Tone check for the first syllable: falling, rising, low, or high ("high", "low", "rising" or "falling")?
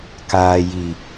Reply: low